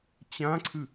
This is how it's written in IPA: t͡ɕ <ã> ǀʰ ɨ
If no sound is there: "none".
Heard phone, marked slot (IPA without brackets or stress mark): ã